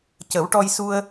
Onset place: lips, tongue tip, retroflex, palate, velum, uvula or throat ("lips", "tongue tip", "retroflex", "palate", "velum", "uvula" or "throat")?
palate